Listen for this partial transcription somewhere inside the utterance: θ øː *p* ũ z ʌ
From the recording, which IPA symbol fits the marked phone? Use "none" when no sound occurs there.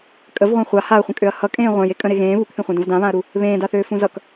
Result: f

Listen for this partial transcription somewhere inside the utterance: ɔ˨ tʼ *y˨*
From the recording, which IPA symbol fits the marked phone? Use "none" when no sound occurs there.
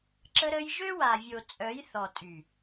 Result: y˨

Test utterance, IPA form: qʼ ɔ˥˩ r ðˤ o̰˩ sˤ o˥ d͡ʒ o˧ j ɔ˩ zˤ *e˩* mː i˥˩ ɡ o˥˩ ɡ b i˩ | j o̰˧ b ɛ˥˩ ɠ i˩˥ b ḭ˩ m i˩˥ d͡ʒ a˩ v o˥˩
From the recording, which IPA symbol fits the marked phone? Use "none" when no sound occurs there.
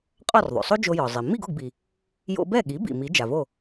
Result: i˩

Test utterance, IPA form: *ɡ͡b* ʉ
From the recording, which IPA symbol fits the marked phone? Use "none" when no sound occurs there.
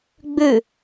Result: ɡ͡b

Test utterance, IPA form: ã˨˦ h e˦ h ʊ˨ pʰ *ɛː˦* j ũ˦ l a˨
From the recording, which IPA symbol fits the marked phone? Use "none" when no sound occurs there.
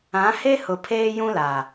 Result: eː˦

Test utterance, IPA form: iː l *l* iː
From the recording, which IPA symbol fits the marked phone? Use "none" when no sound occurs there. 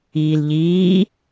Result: ʎ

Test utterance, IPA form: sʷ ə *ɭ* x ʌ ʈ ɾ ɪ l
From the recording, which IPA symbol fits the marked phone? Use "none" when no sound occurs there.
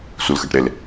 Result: l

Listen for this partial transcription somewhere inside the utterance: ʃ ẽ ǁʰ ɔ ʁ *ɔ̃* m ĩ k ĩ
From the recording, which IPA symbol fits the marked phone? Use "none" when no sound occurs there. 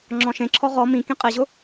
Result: ɔ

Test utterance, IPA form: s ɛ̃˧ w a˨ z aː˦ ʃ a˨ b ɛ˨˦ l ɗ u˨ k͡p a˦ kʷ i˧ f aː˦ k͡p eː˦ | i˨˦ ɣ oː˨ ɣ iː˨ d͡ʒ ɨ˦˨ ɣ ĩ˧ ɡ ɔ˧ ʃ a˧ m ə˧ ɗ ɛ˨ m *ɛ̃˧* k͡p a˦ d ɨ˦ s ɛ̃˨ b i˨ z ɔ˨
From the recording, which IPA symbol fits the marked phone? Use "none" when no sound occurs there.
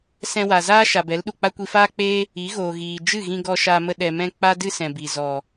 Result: ɛ̃˧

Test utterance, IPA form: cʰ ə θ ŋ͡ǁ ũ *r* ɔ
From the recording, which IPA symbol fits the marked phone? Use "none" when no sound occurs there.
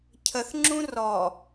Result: r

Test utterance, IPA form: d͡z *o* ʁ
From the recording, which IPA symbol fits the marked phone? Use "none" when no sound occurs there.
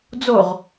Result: o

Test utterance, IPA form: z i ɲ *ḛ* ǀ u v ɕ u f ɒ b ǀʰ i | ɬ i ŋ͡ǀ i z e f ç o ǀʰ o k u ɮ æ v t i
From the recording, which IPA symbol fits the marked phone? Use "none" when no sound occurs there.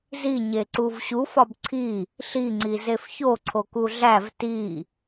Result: e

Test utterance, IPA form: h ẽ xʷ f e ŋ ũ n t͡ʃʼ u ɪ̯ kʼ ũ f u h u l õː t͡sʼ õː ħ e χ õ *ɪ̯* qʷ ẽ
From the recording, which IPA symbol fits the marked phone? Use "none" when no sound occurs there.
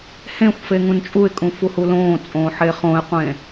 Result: ɪ̯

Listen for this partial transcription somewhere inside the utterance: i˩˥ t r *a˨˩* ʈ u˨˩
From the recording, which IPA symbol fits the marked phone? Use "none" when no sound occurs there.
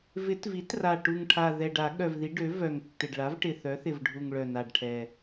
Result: a˨˩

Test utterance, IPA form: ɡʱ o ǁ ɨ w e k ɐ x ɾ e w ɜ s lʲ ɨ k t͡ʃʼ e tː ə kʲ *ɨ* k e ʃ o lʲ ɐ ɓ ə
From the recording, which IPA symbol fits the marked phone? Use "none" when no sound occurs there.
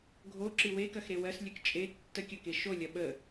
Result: ə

